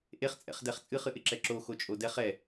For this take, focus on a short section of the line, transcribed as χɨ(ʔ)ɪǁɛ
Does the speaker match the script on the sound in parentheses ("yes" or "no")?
yes